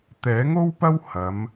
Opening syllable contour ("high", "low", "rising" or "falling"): rising